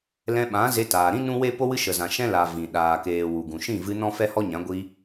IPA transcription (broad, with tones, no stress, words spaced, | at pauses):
lɛ̃˧ɓã˨˦ ze˧taː˨ɾĩ˦ nũ˦we˦ po˦wɨ˦ʃə˨zã˨ ʃɛ̃˦la˨ vĩ˨ ɗaː˨keː˨ wu˨ɡũ˨ ʃĩ˦˨vɨ˧ nɔ̃˦ fɛ˦hɔ˦ɲã˨˦ ɡʷi˧